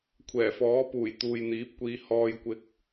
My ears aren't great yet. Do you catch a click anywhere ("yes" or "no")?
no